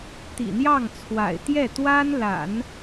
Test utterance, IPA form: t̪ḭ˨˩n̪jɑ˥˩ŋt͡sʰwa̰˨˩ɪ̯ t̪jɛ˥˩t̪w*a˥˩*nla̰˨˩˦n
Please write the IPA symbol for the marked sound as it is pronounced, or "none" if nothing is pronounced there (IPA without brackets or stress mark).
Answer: a˥